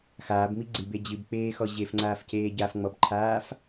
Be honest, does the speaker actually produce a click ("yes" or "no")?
yes